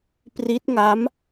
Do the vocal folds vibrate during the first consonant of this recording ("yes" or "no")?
no